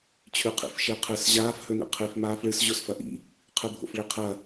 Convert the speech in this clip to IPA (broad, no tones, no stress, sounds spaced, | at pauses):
t͡ɕʰ ʉ qʰ ḭ f ʃ e qʰ ɨ s ʑ aː f h ɵ n ḭ qʰ i f m aː f ɭ ɨ s ʑ o s f ɐ ʔ ḭ | qʰ ɨ bʱ o̰ f ɭ i qʰ ɐ